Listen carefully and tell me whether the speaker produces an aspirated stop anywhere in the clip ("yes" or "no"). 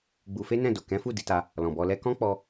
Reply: no